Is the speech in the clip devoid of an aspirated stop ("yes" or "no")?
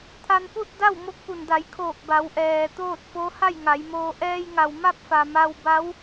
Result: no